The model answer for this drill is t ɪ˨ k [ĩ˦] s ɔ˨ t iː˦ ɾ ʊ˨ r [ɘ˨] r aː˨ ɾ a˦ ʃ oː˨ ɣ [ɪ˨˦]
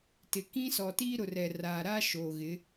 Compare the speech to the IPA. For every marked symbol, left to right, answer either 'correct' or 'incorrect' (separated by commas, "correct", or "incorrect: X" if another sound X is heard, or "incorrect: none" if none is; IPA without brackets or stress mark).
correct, incorrect: ɛ˨, correct